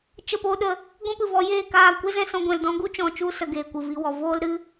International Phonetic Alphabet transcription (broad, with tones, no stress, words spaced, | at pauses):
t͡ʃə˦˨poː˦ɗə˧ | ɡʷɛ̃˦pɨ˨vɔ˧ jeː˦˨kaː˦˨ kʷe˦zɛ̃˧ sɔ̃˧ɡʷɛ̃˨ldɔ̃˦ ɡu˦t͡ʃɔ̃˨t͡ʃu˧sə˨ ɡeː˨kʷɨ˨vi˧wɔ˨ voː˦lɾɨ˦